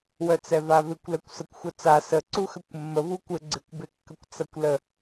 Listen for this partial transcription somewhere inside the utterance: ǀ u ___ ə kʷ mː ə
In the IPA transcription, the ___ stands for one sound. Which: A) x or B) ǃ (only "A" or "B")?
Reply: A